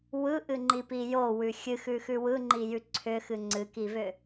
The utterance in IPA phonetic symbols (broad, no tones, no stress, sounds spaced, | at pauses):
w ɯ ʔ ɨ ŋ͡ǃ i p i j o w ʉ xʲ ɨ x ʉ x ʉ w ɯ ŋ͡ǃ i j ʉ ǀʰ ʏ x ɨ ŋ͡ǀ ɨ k i v ʏ